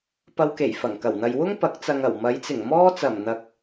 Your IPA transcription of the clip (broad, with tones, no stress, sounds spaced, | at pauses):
p ɐ˧ w k e˨˩ j f ɐ˨˩ ŋ k ɐ˨˩ w n̪ ɐ˨ j w ʊ˥ ŋ p ɐ˨˥ k̚ t͡s ɐ˨ ŋ ɐ˨˩ w m ɐ˨˧ j t͡s ɪ˨˩ ŋ m ɔː˥ t͡s ɐ˨˩ m n̪ ɐ˨ k̚